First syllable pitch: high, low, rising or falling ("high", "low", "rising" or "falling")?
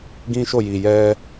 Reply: high